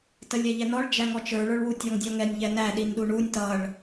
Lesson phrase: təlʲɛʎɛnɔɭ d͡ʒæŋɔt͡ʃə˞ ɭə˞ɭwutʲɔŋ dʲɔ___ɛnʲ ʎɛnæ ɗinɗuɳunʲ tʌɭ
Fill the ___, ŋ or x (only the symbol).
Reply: ŋ